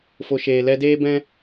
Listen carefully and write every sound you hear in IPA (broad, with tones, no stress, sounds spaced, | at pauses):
f o˨ ʃ eː˨ l ɛ˧ d eː˦ b ɛ̃˦